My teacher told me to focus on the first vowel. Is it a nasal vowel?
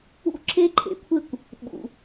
no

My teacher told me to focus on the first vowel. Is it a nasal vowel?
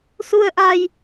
no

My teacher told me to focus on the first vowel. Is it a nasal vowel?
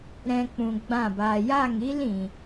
yes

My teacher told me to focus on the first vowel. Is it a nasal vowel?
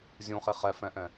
yes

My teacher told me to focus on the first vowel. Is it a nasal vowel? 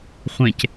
yes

